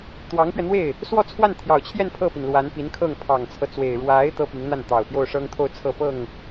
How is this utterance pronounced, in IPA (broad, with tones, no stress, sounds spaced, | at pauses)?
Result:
t̪ w ɑ˧˥ ŋ p ɥ ɛ˧ n̪ w e˥˩ ɪ̯ | s w ɔ˥˧ t͡sʰ w a˥˩ n t̪ʰ j ɑ˨˩ ʊ̯ t͡ɕʰ j ɛ˥˧ n pʰ ɤ˥˩ p i˩ n l w a˧˥ n p i˧˥ n kʰ ɤ˥˩ ŋ pʰ ɑ˨˩ ŋ t͡sʰ ɤ˦ t͡s w e˨˩ ɪ̯ ɻ w a˧˥ ɪ̯ t̪ ɤ˥ p i˧˥ ŋ n̪ a˥˩ n t̪ ɑ˨˩ ʊ̯ p j o˥˩ ʊ̯ ʂ ɤ˥ ŋ t̪ʰ o˥˧ ʊ̯ t͡sʰ ɤ˥˧ p ɤ˥˩ ŋ